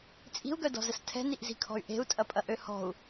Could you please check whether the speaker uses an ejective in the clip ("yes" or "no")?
yes